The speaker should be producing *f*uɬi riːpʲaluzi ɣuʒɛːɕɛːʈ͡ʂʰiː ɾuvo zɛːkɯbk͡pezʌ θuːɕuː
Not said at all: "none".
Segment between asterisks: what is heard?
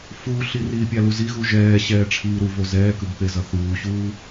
f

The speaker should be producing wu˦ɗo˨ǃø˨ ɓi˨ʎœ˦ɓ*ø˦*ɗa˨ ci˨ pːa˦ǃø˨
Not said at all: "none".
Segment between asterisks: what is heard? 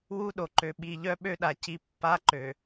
ø˦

